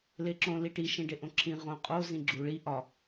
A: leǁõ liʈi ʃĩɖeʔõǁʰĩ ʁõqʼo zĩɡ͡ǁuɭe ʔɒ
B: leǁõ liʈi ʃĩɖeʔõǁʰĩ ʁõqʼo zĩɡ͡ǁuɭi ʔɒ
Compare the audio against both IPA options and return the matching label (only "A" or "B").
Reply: B